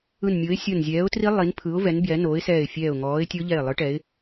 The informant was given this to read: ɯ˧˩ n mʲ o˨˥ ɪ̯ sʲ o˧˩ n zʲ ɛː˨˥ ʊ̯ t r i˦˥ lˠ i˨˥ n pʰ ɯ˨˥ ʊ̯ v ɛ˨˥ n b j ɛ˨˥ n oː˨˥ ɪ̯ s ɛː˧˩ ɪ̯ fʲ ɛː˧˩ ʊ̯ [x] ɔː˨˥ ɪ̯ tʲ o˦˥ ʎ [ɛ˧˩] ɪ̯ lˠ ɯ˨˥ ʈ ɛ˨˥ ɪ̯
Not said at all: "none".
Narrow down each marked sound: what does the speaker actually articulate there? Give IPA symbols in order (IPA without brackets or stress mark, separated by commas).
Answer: ŋ, ɛ˧˩